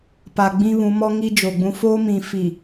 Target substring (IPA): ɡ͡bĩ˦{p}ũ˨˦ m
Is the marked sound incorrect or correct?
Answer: incorrect: β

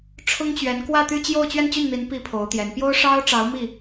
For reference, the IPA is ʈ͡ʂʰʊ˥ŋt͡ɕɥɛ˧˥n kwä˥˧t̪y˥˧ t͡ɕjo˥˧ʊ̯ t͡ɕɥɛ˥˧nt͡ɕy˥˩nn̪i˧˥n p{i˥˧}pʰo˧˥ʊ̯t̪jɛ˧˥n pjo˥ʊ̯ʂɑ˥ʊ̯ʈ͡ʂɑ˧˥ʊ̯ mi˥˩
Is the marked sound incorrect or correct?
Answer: incorrect: i˥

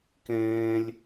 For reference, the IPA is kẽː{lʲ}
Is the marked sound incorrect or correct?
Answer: correct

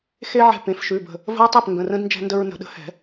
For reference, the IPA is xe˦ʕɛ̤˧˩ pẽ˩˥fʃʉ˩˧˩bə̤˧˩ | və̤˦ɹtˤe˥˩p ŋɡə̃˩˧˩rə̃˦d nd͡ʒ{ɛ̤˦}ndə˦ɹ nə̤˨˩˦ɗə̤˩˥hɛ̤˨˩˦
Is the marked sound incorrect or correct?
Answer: correct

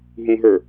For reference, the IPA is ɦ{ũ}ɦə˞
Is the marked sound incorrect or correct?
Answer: correct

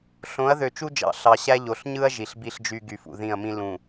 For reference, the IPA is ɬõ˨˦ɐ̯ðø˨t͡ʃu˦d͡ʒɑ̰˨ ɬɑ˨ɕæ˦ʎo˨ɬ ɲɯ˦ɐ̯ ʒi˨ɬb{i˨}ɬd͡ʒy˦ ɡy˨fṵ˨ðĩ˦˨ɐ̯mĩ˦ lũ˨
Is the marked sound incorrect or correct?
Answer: incorrect: i˦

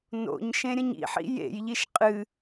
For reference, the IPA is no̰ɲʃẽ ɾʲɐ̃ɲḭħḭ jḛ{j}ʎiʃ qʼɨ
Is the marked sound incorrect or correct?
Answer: correct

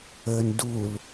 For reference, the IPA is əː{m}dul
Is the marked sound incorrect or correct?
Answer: incorrect: n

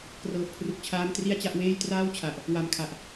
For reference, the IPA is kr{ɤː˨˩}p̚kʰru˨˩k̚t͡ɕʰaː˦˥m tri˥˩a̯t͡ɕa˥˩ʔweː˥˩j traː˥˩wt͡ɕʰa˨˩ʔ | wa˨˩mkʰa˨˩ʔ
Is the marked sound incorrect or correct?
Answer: correct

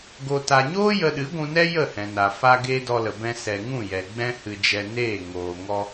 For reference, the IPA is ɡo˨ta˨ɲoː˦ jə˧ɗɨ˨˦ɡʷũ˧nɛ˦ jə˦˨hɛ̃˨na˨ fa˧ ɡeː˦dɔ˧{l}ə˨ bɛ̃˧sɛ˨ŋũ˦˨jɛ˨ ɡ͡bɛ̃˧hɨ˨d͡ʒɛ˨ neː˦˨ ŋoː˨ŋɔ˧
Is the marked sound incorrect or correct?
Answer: correct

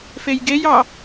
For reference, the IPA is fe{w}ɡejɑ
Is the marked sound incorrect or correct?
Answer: incorrect: j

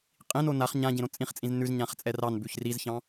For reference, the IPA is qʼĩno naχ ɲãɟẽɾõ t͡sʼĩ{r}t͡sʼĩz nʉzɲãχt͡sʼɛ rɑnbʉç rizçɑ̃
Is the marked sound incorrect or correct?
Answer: incorrect: χ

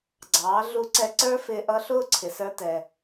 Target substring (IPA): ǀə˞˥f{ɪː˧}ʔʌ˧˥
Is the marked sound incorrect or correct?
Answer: correct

